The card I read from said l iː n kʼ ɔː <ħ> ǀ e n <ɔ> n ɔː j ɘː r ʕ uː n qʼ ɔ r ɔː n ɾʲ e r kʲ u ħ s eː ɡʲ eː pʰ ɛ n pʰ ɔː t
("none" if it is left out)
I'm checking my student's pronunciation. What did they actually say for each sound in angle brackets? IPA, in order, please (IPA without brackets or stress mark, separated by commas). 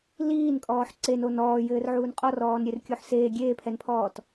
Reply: ħ, o